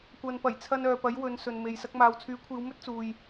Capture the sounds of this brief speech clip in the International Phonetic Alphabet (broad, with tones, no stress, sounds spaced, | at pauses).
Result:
kʷ ɐ˨ n p ɐ˨˩ j t͡sʰ ɐ˧ n œː˨ p ɐ˨˥ j w ɵ˨˧ n s ɵ˨ n m e˨ j s ɐ˧ k̚ m aː˨ w t͡sʰ yː˨˥ kʷʰ iː˨˧ w m ɵ˥ t̚ t͡s uː˨ j